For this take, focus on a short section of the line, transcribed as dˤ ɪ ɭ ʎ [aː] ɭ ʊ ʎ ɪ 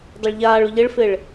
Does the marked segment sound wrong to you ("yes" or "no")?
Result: no